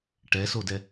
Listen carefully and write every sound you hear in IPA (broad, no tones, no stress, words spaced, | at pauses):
ʈɛsodɛ